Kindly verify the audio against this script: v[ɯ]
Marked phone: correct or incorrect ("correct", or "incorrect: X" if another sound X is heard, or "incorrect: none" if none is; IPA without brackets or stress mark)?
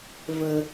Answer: incorrect: ə